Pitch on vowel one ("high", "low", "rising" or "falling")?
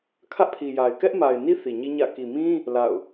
high